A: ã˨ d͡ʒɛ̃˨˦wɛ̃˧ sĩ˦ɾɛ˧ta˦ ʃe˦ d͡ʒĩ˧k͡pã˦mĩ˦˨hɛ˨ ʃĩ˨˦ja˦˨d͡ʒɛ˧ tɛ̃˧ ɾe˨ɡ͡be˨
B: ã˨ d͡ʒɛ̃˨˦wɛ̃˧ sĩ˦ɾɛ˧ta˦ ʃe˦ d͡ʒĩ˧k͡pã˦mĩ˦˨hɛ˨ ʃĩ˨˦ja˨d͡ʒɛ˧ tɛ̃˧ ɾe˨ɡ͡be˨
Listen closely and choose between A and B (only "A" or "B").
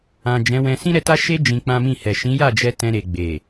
A